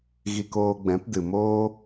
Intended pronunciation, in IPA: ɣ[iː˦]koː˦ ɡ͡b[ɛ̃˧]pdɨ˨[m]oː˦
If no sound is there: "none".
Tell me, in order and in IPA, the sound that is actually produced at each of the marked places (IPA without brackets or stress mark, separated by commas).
i˦, ɛ̃˨˦, m